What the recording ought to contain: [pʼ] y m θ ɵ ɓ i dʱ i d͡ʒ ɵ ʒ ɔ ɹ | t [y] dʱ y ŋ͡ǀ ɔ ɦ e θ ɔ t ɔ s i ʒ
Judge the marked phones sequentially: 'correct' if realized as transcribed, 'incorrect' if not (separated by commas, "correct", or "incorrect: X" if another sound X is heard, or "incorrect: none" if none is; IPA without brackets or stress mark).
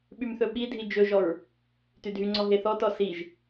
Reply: incorrect: ɓ, correct